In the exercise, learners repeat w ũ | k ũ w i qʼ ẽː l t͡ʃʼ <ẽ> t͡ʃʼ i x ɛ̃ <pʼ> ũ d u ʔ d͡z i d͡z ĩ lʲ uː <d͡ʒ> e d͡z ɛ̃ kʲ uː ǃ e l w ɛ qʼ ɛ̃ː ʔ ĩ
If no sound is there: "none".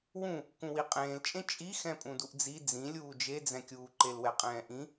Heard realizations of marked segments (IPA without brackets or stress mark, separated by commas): ẽ, pʼ, d͡ʒ